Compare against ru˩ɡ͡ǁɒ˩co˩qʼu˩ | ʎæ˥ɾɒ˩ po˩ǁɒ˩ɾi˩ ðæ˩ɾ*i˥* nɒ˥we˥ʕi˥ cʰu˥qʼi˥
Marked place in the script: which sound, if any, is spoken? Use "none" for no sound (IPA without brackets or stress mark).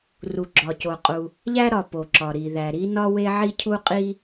i˥